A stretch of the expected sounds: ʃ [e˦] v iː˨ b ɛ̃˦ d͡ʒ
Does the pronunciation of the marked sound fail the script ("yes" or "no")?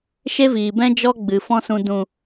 no